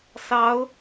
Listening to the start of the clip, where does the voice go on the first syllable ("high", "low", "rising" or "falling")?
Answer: rising